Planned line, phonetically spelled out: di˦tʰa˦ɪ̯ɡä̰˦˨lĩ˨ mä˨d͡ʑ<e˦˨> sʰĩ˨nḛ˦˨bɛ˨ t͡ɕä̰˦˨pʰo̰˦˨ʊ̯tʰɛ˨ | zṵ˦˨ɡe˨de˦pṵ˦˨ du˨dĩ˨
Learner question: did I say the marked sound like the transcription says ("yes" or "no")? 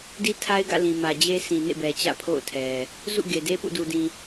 no